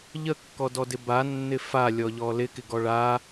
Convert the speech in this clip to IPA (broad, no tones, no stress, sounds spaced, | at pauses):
ʎ ə kː ɔ d ɔ d ɪ b a nː ɪ f a lʲ ɔ ʎ ɔ l ɪ k ɪ ɡ ɔ ɭ a